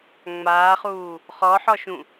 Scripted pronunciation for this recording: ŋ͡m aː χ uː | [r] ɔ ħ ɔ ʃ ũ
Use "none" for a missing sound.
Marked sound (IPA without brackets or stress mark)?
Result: χ